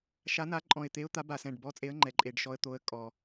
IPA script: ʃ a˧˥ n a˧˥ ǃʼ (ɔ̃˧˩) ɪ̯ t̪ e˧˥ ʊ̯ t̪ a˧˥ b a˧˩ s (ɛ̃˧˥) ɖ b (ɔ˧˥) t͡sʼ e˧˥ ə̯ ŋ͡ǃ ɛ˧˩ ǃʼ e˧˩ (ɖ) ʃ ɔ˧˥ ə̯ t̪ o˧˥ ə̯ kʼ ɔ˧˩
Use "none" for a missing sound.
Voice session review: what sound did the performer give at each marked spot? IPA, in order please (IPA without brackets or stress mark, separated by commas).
ɔ̃˧˩, ɛ̃˧˩, ɔ˧˥, ɖ